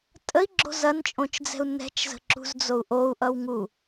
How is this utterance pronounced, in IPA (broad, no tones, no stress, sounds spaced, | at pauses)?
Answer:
tʼ ə i̯ ɡ͡ǁ o̤ z ɐ n t͡ʃʼ õ t͡ʃ d͡z ɛ̤ u̯ n ɛ̤ t͡ʃ z ə̤ ǁ ṳ z d͡z o u̯ ʔ o u̯ ʔ ʌ w ŋ u